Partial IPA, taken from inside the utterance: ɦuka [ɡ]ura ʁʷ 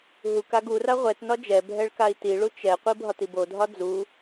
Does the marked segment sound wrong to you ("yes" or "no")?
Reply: no